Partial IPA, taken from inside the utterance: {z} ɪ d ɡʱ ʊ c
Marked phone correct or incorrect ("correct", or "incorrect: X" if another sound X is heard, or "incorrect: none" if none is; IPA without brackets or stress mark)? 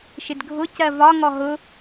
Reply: incorrect: ʃ